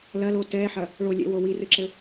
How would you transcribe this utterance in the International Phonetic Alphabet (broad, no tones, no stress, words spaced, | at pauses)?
lɐlo tɛħɐ | ɭolʲɛ̰wo wirɨǁɘ